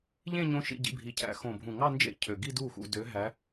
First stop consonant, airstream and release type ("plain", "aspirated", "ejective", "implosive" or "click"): plain